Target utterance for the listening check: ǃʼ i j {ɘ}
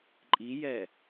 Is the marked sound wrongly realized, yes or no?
yes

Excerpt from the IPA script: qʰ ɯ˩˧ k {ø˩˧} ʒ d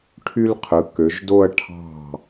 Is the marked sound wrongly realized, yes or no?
no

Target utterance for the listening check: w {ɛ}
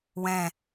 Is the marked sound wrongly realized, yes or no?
yes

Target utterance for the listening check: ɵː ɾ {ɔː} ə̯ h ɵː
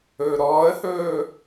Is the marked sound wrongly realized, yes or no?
no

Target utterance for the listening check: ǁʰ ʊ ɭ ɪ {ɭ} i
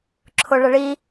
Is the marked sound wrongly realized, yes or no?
no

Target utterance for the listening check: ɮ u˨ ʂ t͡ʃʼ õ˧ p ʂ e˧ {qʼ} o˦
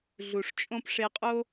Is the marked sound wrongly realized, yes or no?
no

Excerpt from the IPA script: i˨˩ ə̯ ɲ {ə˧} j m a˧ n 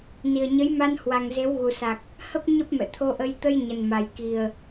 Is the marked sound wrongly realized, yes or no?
yes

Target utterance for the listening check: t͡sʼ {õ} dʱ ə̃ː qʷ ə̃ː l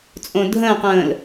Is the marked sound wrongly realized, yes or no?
no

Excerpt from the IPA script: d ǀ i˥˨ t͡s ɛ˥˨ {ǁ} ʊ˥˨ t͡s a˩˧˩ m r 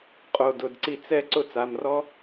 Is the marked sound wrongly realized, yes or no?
yes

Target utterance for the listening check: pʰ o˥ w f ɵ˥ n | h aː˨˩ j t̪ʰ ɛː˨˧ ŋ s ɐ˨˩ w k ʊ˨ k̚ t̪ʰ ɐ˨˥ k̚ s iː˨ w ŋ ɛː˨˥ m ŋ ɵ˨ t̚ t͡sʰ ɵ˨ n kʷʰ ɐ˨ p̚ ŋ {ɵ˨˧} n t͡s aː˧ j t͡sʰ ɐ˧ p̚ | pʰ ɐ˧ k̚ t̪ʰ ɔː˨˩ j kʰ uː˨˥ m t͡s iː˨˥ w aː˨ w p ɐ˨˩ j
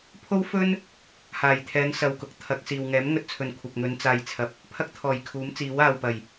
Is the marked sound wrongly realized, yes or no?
no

